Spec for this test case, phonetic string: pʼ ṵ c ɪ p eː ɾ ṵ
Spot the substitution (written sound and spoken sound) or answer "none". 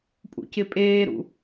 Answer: p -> pʼ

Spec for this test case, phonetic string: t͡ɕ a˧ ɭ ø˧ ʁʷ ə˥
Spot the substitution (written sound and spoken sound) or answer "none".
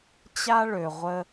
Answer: a˧ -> a˥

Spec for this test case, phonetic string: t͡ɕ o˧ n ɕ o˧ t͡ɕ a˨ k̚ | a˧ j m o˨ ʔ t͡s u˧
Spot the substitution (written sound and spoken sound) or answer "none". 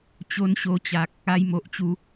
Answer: t͡s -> t͡ɕ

